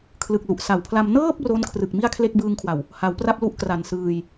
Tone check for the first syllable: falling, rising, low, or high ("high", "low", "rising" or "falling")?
low